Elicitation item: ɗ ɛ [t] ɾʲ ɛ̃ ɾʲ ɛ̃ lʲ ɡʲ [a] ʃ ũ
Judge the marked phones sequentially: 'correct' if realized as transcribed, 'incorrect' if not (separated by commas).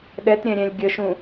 correct, incorrect